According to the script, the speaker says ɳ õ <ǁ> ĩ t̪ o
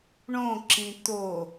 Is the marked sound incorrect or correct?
correct